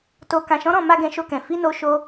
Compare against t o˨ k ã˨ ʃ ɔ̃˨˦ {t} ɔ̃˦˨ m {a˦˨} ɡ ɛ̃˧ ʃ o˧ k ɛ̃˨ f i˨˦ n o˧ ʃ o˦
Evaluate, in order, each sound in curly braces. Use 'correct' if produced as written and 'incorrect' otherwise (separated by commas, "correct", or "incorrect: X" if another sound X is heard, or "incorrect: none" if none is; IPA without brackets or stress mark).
incorrect: ɾ, incorrect: a˧